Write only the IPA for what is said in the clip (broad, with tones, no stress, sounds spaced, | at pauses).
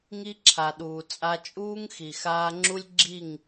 ŋ i˦ ǁʰ a˨ ɗ uː˨ t͡sʼ a˧ t͡ʃʼ uː˦ ŋ x i˨ x aː˧ ŋ͡ǁ u˦ lʲ ɡ͡ǁ i˦˨ ŋ